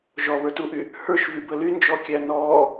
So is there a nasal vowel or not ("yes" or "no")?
no